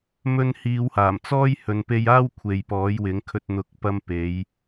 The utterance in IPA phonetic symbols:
m ɵ˧ n h iː˨˧ w h aː˨˩ m t͡s ɔː˥ j h ɵ˨˧ n p e˧ j aː˥ w kʷʰ e˨ j p ɔː˨˥ j w ɪ˨˥ ŋ kʰ ɵ˧ t̚ n̪ ʊ˨˥ k̚ p ɐ˧ m p e˨˧ j

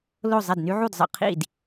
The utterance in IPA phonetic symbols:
l o˥˩ zˤ ɛ˥˩ d n y˥ ʕ u˥˩ d zˤ ə̰˥˩ qʰ ḭ˥˩ d

